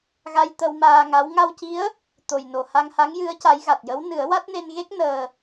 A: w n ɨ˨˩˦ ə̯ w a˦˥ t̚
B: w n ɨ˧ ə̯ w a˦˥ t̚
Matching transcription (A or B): A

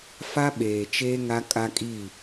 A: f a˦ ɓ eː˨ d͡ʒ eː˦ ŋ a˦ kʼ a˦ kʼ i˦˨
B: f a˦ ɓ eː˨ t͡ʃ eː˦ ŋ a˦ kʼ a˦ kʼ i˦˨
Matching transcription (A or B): B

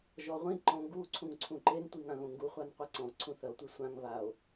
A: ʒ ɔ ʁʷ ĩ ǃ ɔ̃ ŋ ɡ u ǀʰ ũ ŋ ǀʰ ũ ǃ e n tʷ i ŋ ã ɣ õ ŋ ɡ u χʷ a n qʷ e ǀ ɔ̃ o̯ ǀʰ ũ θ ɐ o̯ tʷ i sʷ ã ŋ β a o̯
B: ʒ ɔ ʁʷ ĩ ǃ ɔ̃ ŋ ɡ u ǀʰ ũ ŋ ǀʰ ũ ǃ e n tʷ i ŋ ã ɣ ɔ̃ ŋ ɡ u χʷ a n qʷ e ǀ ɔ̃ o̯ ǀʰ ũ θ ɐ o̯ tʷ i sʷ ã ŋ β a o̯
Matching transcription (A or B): A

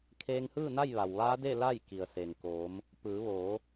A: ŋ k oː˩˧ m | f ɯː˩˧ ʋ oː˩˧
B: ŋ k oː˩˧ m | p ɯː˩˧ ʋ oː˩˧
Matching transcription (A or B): B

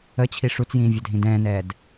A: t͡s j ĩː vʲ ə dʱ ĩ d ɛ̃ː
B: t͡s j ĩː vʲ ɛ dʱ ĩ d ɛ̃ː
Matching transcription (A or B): B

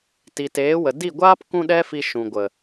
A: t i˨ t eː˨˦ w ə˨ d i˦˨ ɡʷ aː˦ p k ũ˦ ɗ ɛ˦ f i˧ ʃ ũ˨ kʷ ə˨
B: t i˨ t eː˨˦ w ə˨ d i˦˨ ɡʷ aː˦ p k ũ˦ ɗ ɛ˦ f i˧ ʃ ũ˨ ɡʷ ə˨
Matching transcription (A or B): B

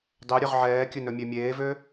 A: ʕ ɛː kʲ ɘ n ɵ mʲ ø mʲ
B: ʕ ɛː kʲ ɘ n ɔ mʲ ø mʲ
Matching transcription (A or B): A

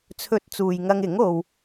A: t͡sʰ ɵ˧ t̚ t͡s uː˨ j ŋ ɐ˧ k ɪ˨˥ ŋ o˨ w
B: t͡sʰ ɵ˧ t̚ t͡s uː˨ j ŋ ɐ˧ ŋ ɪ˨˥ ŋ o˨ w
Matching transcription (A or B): B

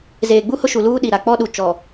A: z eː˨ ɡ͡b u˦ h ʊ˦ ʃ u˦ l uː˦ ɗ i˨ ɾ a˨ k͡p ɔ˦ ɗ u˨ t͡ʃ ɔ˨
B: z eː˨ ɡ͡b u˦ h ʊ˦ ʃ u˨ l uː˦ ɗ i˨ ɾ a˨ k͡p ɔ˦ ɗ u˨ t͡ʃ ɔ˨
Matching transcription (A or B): B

